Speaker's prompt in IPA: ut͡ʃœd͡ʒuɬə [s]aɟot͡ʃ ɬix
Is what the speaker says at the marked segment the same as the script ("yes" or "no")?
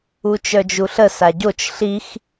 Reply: yes